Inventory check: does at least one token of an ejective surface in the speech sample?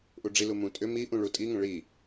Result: yes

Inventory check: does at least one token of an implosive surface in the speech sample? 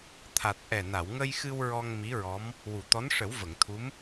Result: no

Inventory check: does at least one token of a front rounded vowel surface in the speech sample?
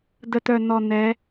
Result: yes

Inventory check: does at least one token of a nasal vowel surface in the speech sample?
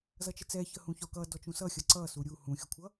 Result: yes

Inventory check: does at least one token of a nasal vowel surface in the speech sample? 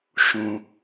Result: yes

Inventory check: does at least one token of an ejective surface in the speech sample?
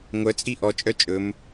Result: yes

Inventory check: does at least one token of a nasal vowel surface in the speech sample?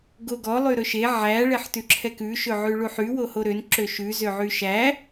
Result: no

